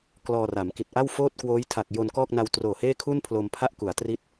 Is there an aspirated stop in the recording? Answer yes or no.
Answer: yes